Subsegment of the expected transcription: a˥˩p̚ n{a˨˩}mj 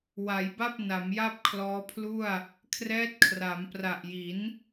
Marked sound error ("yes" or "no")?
yes